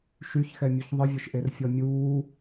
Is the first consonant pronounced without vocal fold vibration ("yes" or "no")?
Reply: yes